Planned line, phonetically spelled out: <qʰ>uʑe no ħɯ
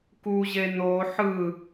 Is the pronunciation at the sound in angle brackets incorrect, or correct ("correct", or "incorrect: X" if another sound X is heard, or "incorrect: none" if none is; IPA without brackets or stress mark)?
incorrect: k